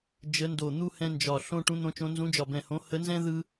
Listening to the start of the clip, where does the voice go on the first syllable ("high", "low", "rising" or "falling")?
rising